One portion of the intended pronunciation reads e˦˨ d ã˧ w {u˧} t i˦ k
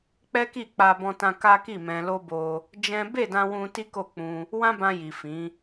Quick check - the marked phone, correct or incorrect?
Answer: incorrect